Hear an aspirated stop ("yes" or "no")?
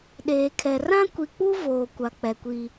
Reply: yes